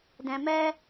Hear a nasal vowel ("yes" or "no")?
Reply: yes